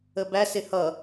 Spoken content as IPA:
əbæsɪ hʌ

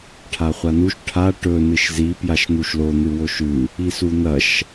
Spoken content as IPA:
ʈʰaχʷanuʃ ʈʰa ʈɵ nɨʃzi pjaʃn̪uʃlo n̪ɨwoʃʉ | isun̪ɐʃ

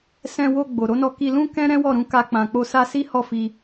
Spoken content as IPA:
sɛ̃˧wo˧ ɡ͡bo˨ ɾo˨˦nɔ˧ ki˧lũ˦ kɛ̃˦ ɾɛ̃˦wɔ˦˨ɾũ˨˦ ka˦k͡pã˧k͡po˦ sa˧ si˦hɔ˦˨fi˧

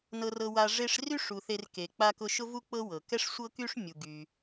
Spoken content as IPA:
nɤ˦rɤ˦wa˦ ʐe˦ʂry˥ʂu˨ θe˦rke˨ k͡pa˦kʊ˦ʃʊ˥vu˥ k͡pɤ˥wɤ˩ kɛ˥ʂ sʷɤ˥ky˥ʂ mʲu˨ɡy˨

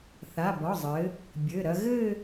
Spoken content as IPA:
θa˩˧˩bɒ˩˧˩zˤɘ˩˧ | bʲɘ˩˧˩ɾɐ˧ ɣɘ˥˧

